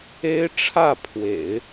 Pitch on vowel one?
high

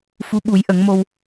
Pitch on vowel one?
rising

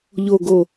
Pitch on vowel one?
low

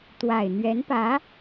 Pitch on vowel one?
low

